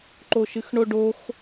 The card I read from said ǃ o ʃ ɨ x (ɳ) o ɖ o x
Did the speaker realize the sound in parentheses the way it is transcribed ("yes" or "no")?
yes